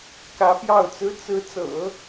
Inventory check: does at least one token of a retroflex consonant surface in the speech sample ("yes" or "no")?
no